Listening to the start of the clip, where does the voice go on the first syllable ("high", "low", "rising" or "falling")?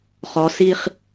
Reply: rising